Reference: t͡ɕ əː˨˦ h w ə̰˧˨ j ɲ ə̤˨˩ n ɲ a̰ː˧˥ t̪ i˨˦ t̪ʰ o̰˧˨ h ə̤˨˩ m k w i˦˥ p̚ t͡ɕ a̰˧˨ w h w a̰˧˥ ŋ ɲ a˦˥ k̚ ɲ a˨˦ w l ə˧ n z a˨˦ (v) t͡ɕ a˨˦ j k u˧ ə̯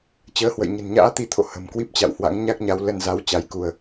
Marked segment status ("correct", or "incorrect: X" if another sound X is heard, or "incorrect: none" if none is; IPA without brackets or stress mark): incorrect: w